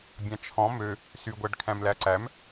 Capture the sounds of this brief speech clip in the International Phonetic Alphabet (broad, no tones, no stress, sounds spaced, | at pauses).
bʲ ɑ̃ t͡ʃʰ ɔ̃ m ø | s y ɡʷ æ ɖ kʰ æ̃ m l æ ǀ æ m